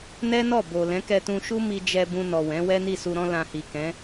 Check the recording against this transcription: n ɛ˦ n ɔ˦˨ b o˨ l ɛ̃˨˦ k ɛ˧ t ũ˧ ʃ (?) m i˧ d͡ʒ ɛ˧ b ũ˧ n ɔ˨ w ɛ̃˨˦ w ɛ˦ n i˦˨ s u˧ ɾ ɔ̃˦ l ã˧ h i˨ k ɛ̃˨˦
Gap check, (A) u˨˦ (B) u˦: B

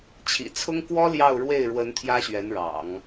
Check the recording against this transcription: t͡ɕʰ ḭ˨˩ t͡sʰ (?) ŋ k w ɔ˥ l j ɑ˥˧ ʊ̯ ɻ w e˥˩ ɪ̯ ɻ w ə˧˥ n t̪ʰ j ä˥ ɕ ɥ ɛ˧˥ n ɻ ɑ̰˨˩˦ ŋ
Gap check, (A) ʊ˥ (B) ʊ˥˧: A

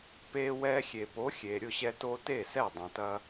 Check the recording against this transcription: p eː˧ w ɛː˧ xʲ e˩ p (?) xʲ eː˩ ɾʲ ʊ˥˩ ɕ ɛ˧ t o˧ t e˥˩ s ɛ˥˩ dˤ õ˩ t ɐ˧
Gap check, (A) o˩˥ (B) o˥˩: A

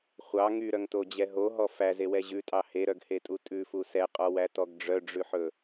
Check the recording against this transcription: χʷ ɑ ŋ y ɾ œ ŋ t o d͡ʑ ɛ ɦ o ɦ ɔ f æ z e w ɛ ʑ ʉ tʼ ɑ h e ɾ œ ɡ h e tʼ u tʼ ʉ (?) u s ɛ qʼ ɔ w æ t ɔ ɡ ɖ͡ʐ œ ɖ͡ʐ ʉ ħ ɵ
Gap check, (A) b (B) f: B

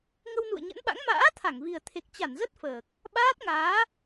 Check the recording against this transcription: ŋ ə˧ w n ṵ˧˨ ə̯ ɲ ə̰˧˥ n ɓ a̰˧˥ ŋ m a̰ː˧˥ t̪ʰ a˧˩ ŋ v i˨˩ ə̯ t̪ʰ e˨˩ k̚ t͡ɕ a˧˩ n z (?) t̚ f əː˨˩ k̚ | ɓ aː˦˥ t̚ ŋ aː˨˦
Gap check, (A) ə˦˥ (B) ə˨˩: A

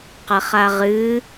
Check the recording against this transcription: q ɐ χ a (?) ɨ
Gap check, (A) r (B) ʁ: B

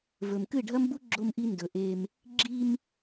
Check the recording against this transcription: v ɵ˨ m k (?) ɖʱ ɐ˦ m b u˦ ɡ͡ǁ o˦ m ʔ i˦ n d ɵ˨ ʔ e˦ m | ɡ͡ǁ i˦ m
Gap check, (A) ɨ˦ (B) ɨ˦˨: B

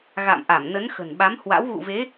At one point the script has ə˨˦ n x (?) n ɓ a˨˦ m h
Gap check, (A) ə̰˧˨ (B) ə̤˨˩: B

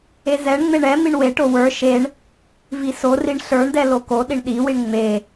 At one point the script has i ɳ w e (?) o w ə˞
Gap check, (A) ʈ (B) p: A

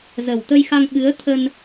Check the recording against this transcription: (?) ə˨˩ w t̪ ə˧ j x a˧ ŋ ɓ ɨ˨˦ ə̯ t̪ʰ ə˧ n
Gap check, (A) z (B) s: A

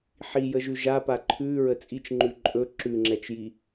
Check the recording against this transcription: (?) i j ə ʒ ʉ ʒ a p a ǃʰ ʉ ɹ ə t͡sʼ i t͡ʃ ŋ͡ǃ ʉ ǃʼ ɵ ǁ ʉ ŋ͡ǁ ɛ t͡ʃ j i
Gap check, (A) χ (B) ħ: B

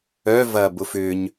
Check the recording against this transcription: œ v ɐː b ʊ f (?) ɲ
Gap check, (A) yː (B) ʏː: B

